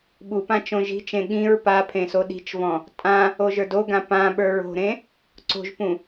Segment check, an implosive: present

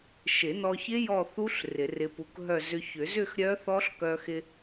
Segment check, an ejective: absent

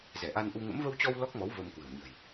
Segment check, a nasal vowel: absent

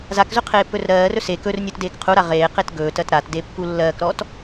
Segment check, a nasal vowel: absent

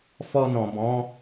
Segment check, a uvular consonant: absent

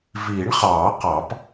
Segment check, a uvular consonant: present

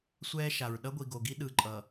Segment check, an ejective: present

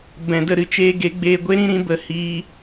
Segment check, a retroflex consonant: absent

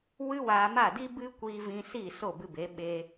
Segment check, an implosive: present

